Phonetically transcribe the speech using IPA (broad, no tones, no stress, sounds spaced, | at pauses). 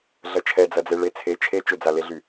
ɮ ɐ t͡ʃʰ ɛ d͡z ɐ d͡z e ɭ e t͡sʰ e t͡ʃʰ e t͡ʃ ʏ d͡z a l e ɮ y